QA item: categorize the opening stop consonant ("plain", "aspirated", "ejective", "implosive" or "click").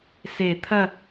aspirated